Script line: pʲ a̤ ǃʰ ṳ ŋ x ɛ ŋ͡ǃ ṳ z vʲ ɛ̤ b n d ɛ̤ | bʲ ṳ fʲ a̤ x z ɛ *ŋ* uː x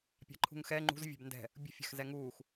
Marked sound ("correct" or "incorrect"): correct